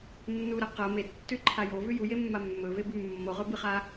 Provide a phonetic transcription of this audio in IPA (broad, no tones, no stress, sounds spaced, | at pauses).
nː u ɾ ɐ q ɐ m e tː ʉ ǃʰ a j o v ʉ j u j e mː a mː ɵ v e b ʉ mː o ʁ ɵ b ɨ χ a